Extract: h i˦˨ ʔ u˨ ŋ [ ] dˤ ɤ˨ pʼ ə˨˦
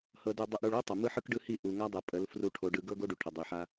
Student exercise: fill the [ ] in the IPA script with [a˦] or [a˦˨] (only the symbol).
a˦